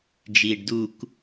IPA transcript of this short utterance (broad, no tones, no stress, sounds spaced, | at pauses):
d͡ʒ iː ɖ d u k